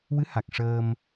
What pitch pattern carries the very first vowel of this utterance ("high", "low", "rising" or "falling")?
rising